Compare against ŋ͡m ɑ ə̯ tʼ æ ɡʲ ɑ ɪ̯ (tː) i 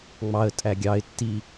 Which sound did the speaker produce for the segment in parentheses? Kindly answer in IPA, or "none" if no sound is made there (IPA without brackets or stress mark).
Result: tː